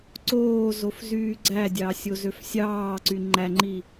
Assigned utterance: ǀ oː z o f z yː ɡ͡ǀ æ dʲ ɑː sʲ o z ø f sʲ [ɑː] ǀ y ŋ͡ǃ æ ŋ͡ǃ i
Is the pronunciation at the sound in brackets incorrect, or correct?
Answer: correct